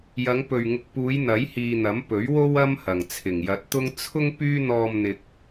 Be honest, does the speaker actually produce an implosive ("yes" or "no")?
no